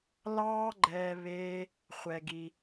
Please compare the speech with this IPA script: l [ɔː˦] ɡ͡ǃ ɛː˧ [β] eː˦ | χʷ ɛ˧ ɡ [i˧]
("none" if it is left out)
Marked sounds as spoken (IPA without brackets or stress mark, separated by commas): ɑː˦, β, i˧